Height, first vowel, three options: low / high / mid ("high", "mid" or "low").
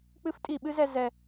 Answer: high